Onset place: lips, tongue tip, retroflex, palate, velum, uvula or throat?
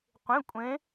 uvula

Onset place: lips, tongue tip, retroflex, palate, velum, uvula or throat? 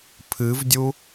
lips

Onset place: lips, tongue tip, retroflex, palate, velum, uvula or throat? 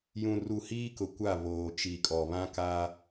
palate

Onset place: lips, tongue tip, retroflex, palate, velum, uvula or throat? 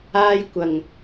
palate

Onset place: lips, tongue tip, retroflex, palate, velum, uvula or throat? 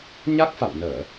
palate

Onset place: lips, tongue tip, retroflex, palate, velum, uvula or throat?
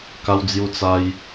velum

